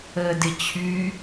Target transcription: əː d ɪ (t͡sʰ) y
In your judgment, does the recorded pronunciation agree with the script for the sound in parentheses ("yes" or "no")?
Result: no